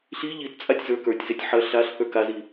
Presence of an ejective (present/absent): present